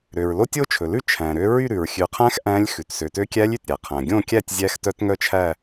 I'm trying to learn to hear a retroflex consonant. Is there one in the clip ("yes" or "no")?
no